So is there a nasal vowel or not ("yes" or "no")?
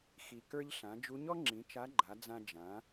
yes